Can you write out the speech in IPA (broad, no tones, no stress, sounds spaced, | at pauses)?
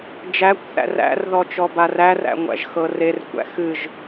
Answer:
d͡ʒ æ kʷ θ æ̰ r æ̰ r ð ɔ t͡ʃ ɔ b a r æ r æ̰ ŋʷ æ̰ ʒ x ɤ r e r kʷ æ̰ x ɨ ʒ